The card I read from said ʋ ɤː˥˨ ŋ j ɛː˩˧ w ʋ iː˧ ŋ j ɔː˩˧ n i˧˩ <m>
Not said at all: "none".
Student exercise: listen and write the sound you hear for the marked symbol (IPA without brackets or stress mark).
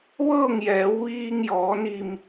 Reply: m